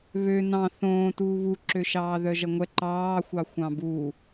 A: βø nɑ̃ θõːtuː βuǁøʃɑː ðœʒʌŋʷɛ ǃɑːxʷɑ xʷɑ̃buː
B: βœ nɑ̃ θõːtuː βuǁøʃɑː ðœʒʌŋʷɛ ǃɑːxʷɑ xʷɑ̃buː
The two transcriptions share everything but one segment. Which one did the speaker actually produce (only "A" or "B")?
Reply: A